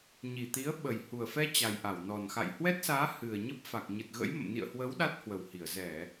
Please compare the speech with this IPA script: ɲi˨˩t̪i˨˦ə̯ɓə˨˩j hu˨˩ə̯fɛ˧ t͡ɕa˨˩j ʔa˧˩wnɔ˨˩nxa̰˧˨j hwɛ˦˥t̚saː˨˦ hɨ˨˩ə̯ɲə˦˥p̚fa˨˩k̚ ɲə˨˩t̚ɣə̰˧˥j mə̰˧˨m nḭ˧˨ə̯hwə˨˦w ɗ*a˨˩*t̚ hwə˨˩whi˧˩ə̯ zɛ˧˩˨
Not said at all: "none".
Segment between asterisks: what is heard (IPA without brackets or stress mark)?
a˦˥